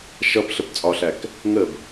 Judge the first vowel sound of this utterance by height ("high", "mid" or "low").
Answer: mid